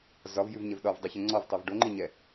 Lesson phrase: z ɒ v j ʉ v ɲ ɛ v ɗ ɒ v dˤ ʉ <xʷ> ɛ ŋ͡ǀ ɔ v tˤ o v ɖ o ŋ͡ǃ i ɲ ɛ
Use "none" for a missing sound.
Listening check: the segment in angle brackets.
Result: ç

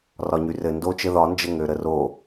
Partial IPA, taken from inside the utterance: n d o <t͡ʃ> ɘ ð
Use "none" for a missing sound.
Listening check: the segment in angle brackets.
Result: t͡ʃ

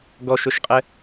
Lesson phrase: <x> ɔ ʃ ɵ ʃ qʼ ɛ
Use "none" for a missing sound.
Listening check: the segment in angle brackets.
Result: ɡ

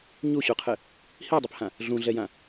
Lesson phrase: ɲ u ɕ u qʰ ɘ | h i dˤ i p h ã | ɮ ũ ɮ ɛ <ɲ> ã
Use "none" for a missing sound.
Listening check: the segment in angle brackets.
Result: j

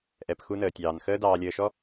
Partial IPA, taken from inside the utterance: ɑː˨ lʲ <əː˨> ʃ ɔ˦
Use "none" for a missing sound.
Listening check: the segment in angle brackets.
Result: əː˨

